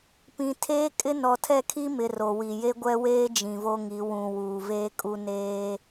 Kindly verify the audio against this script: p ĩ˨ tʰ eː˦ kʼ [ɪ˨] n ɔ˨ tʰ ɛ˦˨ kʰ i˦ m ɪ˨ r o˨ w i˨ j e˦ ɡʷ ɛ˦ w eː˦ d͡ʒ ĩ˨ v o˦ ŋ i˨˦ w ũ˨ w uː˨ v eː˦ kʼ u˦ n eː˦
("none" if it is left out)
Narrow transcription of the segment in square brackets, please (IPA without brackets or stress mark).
ɪ˦